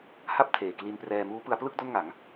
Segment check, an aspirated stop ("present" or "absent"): present